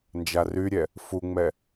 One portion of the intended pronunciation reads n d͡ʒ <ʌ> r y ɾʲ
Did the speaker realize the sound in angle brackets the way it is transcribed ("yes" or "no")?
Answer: no